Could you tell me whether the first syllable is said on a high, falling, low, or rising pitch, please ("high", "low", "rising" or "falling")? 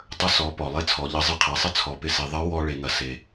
high